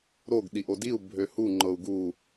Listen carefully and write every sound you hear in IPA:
ɾ o ɡ ɗ i ʔ o d i u̯ bʱ ø h u ŋ͡ǃ ɤ u̯ ɡ u

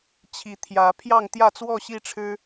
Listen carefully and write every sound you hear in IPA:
t͡ɕʰ i˨˦ t̪ʰ j ä˨˦ pʰ j ɑ˥˨ ŋ t̪ j ä˥˨ t͡s w ɔ˥˨ ɕ i˥˨ ʈ͡ʂʰ ɻ̩˦

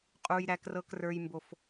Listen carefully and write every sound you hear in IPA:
qʼ u˦ j ɾ æ˦ k r ɤ˦ k r ə˞˦ j m b o˦ f

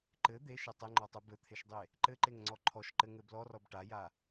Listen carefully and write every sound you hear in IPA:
ǃ ɘ d̪ e ʃ ɘ tˤ ɘ ŋ͡ǃ ɔ tˤ u b ɘ t̪ʰ e ʃ dˤ e | ǃ ɘ ǃ e ŋ ŋ͡ǀ ɔ ǃʰ ɔ ʃ ǃ ɘ ŋ ɘ b l ɔ r ɔ b ʈ a j a

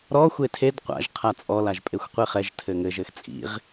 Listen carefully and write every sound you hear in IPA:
ɾ ɔ xʷ e tʰ e d qʷ a̰ ʒ qʰ a t͡sʼ ɔ l a ʒ pʼ e xʷ qʷ e χ ɛ ʒ tʰ ɘ ŋ ɘ ʒ ɘ x t͡sʼ ḭ ʁ

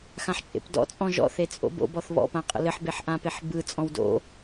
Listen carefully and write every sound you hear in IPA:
x ã ħ t͡ʃʼ ḛ p d ɔ̰ t͡sʼ ɔ̃ ʒ ɔ̰ θ e t͡sʼ o̰ b o̰ b ɔ θ β ɔ̰ p ã qʼ ə̰ l ɘ ħ b e ħ ʔ ã p e ħ b ɯ t͡sʼ ɔ̃ w d o̰

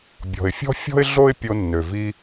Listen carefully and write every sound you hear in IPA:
bʲ ɔ̤˩ ɪ̯ fʲ ɔ̤˥ fʲ ɔ̤˥ ɪ̯ ɮ o˥ ɪ̯ pʲ o˧ nː ø˩ v i˧

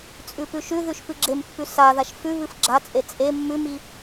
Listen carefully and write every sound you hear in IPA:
t͡sʼ ʉ p ʉ ʃ ʉ ð ʉ ʃ p ɨ ɡ͡ǁ e m pː ʉ s a ð a ʃ f ʉ β ɨ f ɡ͡ǁ a t͡sʼ e t͡sʼ e mː ʉ m i

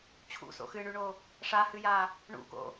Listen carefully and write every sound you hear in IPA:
t͡ɕʰ ṵ s o̰ x ɨ ɳ y ɳ o | ʂ a h ɨ j a | ɳ ṵ k o̰

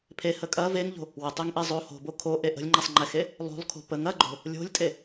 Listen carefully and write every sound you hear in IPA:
pʰ e h ə kʼ ɐ v e ŋ ʎ o̤ | w ə tˤ e ŋ ʔ e zˤ o h o̤ b o kʰ o ʔ e ʔ ə̤ lʲ ŋ͡ǃ ɛ sˤ ŋ͡ǃ ɛ x e | lˠ o̤ lˠ kʰ o̤ p ə ŋ ɐ ɡ͡ǃ o̤ | lʲ o̤ lʲ tʼ e

